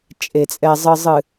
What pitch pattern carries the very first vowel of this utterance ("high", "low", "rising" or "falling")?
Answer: low